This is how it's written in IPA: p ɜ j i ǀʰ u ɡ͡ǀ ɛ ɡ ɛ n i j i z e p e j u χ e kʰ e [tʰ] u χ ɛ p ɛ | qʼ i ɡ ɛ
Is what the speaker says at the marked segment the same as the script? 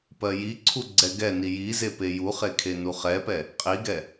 no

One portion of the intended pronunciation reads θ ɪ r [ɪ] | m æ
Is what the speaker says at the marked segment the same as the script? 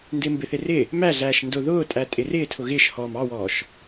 yes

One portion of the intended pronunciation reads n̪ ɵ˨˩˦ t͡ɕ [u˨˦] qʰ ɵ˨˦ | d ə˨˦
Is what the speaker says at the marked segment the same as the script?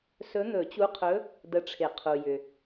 yes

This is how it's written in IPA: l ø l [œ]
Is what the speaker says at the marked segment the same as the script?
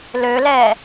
no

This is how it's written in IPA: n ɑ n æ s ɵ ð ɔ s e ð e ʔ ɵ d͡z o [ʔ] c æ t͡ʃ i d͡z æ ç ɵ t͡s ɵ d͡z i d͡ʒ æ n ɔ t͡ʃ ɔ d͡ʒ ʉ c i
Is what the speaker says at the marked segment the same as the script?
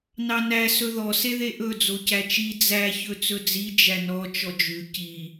no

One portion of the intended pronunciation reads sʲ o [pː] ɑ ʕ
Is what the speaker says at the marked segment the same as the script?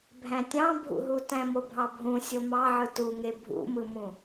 no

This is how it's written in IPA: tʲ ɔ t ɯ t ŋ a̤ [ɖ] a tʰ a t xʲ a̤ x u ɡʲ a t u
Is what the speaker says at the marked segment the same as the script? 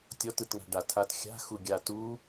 yes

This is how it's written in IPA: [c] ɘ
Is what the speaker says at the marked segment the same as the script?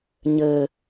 no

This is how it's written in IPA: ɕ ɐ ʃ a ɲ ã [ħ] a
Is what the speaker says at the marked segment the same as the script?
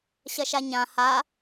no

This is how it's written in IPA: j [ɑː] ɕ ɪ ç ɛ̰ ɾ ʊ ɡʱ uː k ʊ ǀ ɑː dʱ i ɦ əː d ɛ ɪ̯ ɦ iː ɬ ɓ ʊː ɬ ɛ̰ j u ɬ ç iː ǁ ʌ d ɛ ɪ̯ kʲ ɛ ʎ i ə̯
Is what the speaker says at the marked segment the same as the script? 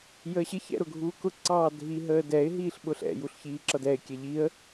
no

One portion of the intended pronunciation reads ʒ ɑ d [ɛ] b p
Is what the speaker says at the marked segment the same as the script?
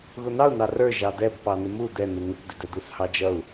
yes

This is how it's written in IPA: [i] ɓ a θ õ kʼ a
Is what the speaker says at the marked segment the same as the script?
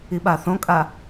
yes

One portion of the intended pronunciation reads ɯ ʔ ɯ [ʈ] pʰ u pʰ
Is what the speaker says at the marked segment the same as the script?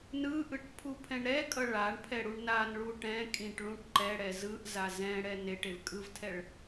yes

